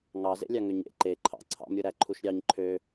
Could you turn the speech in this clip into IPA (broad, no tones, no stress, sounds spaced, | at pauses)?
ŋ ɑ z ḛ lʲ ɑ ŋ ø ɲ ḛ ǃ e ǃʰ ɑ̰ ǀʰ ɑ̰ m ɾʲ ɯ ɾ æ ǃʰ u ʃ ɾʲ ɑ ɲ ǃʰ ø